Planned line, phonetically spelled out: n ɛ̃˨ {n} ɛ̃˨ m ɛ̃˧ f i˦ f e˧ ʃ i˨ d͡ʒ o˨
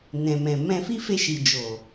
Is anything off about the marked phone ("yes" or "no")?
yes